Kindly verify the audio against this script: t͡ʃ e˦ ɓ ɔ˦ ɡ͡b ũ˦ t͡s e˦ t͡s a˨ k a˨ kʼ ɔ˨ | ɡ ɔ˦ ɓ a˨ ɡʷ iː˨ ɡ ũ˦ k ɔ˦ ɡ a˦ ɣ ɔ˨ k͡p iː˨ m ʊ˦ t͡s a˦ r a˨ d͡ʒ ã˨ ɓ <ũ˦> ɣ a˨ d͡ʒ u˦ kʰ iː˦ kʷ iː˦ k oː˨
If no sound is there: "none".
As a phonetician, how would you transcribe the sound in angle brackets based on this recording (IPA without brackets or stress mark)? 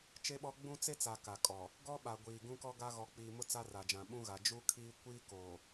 ũ˦